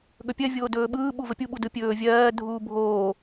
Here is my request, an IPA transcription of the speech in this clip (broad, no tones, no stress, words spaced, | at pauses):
ɠɵpʲɜ vʲoːdɵːɓɯː ɓuvəpʲu ɓudɯpʲɵː vʲɜː dʱuːbʱoː